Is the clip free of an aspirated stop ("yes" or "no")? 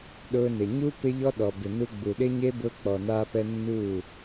yes